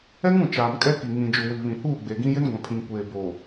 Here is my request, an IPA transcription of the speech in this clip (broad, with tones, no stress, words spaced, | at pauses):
ɛ˦ŋũ˨ t͡ʃaː˨mkʼɛ˦ki˨ ŋĩ˨ d͡ʒu˨wi˨ βĩ˨huː˦˨ ɡ͡be˨ɡĩ˦ jɪ˦nɡʷã˨pʰĩ˨ŋ kʷeː˨boː˨